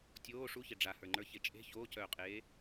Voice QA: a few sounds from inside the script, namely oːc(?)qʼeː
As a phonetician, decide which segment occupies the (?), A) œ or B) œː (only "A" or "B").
B